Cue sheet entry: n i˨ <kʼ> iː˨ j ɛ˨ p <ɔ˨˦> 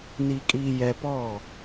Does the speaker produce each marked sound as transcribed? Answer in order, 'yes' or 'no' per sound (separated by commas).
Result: yes, no